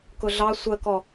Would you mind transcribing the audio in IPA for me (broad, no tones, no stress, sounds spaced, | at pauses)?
k ʊ ɮ ɑ sʷ ɜ k ɔ